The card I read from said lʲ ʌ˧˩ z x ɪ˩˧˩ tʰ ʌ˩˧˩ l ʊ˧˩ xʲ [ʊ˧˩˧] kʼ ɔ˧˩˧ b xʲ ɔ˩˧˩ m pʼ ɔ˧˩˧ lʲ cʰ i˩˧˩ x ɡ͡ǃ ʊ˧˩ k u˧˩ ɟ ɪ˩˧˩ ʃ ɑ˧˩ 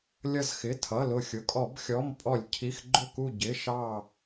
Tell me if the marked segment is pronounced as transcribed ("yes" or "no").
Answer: no